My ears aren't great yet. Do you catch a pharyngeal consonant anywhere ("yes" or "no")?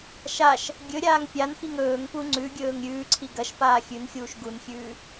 no